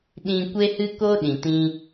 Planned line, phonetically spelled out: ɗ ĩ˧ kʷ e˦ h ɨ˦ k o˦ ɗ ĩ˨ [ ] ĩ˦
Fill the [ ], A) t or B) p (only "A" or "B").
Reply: A